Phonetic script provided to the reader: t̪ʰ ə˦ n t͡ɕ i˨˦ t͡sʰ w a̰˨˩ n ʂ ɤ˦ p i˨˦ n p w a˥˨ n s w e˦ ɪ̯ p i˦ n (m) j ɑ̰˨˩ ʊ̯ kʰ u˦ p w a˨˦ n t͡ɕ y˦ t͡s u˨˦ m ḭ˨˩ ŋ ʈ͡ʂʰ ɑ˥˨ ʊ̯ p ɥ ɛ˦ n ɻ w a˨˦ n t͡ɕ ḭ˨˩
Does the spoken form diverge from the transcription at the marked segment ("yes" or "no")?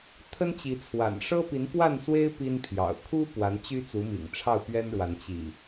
yes